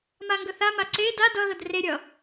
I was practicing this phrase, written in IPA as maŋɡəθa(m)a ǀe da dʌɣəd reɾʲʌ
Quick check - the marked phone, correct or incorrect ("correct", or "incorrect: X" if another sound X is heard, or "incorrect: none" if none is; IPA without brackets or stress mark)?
correct